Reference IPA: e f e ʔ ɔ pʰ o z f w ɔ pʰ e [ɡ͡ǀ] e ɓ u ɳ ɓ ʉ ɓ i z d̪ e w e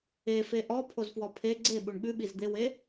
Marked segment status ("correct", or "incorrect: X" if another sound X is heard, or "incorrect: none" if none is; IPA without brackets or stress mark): correct